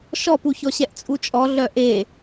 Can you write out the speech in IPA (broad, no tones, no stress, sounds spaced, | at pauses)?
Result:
ʃ ɔ p u ç ɔ ɕ ɛ ʔ t͡sʼ u t͡ʃʼ ɔ ɮ œ ʔ e